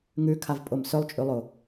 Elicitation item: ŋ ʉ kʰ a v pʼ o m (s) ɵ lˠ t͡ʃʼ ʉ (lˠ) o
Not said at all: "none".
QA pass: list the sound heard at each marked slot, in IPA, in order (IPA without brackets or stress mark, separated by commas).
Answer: s, lˠ